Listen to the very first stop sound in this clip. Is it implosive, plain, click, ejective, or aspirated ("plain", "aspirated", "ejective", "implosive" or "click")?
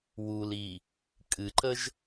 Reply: ejective